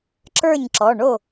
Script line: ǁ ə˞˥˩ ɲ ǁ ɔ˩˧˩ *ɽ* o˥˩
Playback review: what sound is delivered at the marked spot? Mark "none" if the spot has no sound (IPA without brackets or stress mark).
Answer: ɳ